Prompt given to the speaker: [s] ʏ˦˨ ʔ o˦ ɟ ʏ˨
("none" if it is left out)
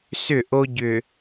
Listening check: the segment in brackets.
s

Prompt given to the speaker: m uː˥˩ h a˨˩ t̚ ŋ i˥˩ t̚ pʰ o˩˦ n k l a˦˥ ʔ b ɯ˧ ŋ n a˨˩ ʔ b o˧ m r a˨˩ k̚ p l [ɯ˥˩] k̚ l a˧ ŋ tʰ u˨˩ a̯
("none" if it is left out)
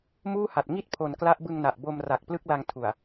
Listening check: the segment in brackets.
ɯ˥˩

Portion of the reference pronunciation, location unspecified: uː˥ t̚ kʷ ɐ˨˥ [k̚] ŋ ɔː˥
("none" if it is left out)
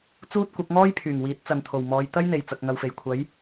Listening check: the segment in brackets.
k̚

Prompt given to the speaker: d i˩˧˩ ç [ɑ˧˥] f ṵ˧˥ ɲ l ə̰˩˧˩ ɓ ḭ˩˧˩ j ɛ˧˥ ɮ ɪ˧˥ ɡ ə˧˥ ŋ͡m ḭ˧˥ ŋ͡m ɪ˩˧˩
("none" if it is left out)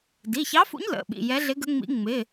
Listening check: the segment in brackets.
ɑ˧˥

